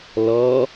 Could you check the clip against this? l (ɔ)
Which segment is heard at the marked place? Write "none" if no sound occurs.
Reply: ɔ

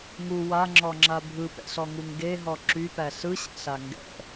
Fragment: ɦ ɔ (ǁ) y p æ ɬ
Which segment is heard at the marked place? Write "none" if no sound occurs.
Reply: ǁ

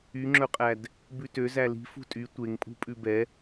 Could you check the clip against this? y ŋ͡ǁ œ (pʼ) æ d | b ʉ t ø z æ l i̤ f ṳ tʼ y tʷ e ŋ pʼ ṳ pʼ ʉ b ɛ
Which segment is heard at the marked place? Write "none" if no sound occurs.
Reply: qʼ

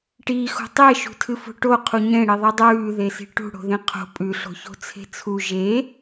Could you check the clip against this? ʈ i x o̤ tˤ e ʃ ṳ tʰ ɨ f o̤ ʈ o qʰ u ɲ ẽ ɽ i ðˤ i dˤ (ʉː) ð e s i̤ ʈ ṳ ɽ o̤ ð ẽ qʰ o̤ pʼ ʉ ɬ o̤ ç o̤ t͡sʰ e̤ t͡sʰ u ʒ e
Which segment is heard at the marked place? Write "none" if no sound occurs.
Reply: ʉː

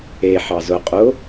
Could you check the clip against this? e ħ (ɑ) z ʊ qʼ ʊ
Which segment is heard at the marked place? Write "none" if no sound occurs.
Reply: ɑ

